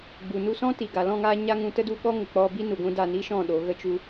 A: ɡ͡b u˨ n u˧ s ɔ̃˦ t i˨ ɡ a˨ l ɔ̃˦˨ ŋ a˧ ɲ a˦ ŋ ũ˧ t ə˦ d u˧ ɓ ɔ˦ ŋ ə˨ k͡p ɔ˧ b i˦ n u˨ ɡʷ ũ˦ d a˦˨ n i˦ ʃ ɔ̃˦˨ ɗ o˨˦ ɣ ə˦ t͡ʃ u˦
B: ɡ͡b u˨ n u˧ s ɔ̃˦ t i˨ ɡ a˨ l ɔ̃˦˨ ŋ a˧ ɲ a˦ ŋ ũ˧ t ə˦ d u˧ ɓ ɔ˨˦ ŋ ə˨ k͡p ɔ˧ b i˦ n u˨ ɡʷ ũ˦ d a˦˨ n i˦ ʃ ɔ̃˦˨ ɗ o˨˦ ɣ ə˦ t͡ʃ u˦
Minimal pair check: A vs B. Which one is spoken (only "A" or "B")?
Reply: A